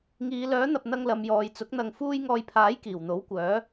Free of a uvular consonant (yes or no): yes